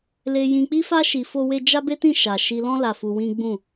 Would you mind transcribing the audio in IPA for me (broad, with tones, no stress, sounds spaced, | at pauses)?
l e˧ j ĩ˧ k͡p i˦ f a˦ ʃ i˧ f o˦ w e˦ d͡ʒ a˦ b e˦ t ĩ˦˨ ʃ a˨ ʃ i˧ l ɔ̃˦ l a˧ f u˧ w ĩ˦ ɡ͡b ũ˦˨